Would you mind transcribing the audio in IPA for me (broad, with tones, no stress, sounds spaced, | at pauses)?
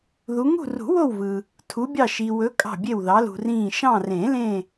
ð u˨˦ ŋ ṳ˦˨ r ṳ˨˩˦ w o˦˨ w v ɯ˨ | tʰ u˨˦ bʲ ɑ˦˨ ʃ i˨ w ɵ˨˦ kʼ ɑ̤˦˨ bʲ e˦˨ w ð ɑ˨˦ l ṳ˨ r ĩː˦˨ ʃ ɑ̃˦˨ r ẽ˨˩˦ l ẽ˦˨